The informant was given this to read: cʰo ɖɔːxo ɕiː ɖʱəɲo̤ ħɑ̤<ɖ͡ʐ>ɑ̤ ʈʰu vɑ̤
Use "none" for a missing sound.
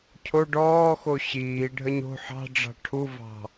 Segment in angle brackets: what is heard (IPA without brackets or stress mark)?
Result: ɖ͡ʐ